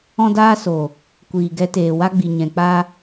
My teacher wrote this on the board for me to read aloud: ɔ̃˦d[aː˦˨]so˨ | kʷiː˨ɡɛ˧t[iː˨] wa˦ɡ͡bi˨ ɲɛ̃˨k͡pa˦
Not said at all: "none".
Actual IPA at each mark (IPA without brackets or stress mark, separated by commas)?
aː˦, eː˨